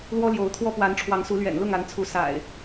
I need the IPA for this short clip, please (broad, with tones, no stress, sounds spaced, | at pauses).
l w ɔ˦ l j o˨˦ ʊ̯ t̪ʰ w ɔ˦ p w a˨˦ n ʈ͡ʂʰ w ɑ˨˦ ŋ s u˨˦ l ɥ ɛ̰˨˩ n l ʊ˥˨ ŋ a˨˦ n t͡sʰ u˨˦ s a̰˨˩ ɪ̯